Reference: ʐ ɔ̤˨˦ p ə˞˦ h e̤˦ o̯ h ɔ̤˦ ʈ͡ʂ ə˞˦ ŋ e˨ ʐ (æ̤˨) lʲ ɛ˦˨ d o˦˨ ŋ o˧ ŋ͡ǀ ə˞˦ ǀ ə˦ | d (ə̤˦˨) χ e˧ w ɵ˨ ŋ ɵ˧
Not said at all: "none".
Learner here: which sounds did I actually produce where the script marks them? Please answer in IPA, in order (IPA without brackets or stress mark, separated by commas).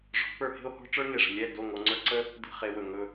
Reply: ə̤˨, ə̤˦˨